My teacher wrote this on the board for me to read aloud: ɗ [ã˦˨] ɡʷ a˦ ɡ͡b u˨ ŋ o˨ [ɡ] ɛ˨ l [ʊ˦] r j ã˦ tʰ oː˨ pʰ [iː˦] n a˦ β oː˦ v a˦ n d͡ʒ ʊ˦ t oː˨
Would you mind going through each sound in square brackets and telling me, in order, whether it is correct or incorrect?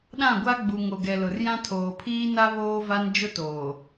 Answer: correct, correct, incorrect, correct

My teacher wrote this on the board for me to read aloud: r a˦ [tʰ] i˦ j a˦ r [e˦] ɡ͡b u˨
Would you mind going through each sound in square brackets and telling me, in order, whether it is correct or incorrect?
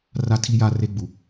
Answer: correct, correct

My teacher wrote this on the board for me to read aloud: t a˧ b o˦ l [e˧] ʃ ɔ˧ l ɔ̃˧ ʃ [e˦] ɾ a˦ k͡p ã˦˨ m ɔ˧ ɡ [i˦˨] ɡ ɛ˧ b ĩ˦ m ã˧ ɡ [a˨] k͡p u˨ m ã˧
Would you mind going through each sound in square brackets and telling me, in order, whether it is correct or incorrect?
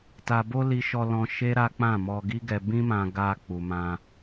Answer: incorrect, correct, incorrect, incorrect

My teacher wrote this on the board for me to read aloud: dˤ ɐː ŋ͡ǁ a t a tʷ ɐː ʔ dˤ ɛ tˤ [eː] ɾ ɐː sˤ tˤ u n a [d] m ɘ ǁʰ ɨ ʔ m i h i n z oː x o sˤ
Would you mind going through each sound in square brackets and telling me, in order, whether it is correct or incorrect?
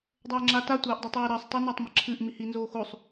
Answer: correct, incorrect

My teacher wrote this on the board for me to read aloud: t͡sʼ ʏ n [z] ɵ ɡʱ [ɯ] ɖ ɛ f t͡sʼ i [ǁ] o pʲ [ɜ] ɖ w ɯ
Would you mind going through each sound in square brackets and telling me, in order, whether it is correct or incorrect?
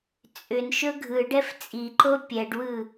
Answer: incorrect, correct, incorrect, incorrect

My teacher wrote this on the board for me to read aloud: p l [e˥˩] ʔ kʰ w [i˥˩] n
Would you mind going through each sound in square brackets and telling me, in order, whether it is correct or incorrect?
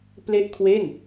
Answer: correct, incorrect

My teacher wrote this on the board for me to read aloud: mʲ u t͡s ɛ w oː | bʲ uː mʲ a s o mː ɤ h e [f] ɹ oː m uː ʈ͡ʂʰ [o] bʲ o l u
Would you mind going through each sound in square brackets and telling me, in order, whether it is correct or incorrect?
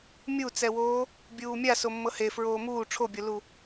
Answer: correct, correct

